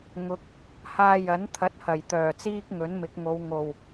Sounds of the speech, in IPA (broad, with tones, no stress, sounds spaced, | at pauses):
ŋ ʊ˨ k̚ | h aː˧ j ɐ˨˥ n t̪ʰ ɐ˨˥ t̚ h ɐ˨˩ j t̪ œː˨˩ t͡s iː˥ k̚ ŋ ɵ˨˥ n m ɪ˨˥ k̚ ŋ o˨˧ w ŋ o˨˩ w